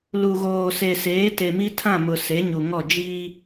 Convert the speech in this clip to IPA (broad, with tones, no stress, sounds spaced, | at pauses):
l u˨ ɣ oː˨ s e˨ s eː˨˦ t e˨ m i˦ tʰ ã˦˨ m ʊ˨ s e˨˦ ɲ u˨ ŋ ɔ˦˨ d͡ʒ iː˦